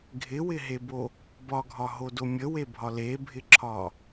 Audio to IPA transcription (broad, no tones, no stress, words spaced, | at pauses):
ɡʱɪwɪɦebo | bɒɡʱɒɦodo mʲəwebʱɒ lebʱɪǁʰɒ